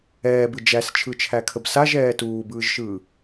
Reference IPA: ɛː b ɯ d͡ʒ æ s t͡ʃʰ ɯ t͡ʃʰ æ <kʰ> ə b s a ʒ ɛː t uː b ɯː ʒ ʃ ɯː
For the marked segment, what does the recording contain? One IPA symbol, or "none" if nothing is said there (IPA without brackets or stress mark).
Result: kʰ